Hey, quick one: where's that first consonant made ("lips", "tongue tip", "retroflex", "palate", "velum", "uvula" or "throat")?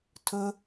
tongue tip